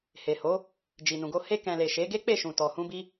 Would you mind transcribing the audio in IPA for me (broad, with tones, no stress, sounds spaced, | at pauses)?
h e˨ h o˨˦ | d͡ʒ i˨ n ũ˨ ɡ o˧ h e˧ k ɛ̃˨ l e˨ ʃ e˨˦ ɡ e˦ k͡p e˦˨ ʃ ũ˨ t ɔ˨ h ũ˧ b i˧